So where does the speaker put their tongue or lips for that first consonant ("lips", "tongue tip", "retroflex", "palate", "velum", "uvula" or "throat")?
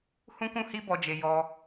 throat